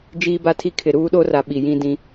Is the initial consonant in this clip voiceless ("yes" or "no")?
no